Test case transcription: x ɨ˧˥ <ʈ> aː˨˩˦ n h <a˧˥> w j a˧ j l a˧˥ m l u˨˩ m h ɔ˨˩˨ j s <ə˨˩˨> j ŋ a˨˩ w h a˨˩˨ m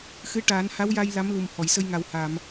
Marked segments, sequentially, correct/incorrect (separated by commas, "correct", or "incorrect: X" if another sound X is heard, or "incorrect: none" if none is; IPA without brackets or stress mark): correct, correct, incorrect: ə˧